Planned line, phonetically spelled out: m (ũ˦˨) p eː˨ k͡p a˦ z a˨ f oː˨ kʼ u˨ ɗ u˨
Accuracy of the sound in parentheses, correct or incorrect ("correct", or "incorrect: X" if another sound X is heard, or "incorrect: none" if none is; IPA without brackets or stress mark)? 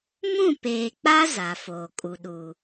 correct